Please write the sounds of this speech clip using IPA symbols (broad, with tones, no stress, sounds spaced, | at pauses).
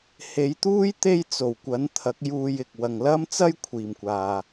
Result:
h e˨˧ j t̪ uː˥ j t̪ e˥ j t͡s o˨ w kʷ ɐ˨˥ n t̪ʰ ɐ˨˥ k̚ j uː˧ j ɪ˨ k̚ w ɐ˨ ŋ l ɐ˥ m t͡s ɐ˥ j kʷʰ iː˨ m kʷ aː˨